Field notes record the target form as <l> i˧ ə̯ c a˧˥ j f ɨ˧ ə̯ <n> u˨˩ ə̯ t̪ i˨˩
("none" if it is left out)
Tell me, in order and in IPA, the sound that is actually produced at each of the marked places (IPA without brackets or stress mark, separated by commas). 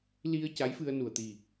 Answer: l, n